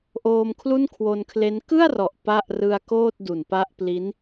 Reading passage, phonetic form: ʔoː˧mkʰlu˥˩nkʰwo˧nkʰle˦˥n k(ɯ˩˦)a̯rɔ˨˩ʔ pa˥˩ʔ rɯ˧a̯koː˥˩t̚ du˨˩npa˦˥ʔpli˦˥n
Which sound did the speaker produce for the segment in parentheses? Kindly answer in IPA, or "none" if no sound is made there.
ɯ˥˩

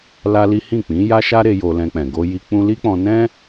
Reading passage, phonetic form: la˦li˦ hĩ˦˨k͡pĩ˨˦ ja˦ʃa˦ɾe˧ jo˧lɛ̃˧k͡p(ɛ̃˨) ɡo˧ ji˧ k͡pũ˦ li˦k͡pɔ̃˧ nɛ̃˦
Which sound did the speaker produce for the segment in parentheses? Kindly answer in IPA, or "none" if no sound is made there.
ɛ̃˨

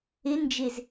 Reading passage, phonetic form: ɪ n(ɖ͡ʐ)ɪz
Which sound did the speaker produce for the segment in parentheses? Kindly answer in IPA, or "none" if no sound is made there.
d͡ʒ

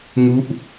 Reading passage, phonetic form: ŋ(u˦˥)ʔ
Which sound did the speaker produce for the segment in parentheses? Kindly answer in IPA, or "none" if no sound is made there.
u˥˩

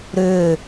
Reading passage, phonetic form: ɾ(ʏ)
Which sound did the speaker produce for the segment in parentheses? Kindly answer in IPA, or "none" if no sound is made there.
ʏː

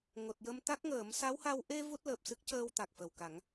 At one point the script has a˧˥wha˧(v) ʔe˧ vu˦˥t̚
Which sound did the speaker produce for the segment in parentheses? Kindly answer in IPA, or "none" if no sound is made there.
w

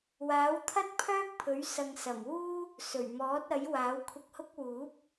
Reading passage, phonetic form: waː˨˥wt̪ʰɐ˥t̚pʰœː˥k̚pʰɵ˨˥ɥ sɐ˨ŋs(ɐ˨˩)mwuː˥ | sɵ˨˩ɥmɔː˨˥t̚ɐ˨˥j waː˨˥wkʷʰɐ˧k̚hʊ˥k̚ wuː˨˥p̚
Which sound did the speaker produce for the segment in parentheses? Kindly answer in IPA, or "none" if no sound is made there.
ɐ˨˩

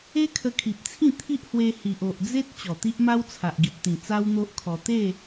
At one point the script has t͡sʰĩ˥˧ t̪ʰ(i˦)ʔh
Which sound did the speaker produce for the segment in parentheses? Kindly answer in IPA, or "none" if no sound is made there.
i˦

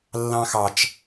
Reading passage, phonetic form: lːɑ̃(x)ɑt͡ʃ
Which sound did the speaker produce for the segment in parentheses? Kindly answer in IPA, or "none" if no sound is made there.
x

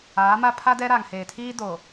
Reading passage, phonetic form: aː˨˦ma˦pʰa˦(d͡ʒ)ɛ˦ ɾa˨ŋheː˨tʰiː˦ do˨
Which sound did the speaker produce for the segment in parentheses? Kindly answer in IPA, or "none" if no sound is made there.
d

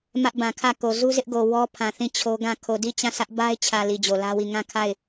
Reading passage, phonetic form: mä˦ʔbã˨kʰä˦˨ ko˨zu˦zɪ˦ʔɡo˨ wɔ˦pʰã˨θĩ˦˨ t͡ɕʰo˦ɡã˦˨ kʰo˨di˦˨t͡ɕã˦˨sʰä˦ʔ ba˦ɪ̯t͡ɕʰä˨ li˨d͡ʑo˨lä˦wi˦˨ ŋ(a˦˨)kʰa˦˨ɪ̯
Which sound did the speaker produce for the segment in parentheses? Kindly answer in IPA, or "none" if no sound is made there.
ã˦˨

